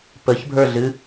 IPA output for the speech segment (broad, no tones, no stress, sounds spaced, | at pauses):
p ə ç bʱ ə˞ ɮ ɨ